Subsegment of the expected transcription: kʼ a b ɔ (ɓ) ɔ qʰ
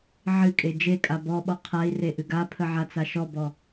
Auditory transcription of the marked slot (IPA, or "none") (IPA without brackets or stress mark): ɓ